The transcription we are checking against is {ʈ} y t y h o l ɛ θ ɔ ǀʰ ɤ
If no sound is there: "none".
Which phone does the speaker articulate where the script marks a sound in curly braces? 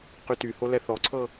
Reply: q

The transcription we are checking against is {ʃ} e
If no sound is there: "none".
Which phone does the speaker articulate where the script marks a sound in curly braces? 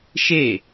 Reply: ʃ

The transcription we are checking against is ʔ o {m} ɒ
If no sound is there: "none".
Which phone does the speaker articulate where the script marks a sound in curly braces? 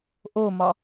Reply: m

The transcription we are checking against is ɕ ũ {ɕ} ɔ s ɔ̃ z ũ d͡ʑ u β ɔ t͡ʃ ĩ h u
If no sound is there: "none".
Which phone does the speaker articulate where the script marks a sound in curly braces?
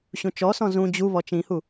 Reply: t͡ʃ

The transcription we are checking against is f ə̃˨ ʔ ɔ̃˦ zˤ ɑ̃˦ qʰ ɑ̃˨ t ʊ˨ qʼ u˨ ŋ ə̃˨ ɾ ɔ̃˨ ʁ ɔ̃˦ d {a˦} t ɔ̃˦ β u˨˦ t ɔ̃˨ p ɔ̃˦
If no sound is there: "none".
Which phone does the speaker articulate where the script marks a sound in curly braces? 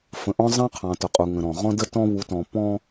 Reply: ə˦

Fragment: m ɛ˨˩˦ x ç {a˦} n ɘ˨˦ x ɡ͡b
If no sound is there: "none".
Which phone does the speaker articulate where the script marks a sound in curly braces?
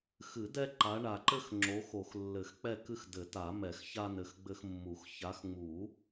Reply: a˦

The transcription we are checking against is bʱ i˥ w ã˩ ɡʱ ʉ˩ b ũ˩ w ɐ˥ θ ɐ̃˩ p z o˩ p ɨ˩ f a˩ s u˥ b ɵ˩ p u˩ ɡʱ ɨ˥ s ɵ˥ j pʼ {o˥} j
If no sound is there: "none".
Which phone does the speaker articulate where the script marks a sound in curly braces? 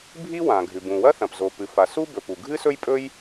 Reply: ɵ˥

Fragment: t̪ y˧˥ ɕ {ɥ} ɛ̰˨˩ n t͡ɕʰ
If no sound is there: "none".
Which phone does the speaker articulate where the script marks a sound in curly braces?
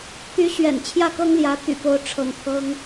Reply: ɥ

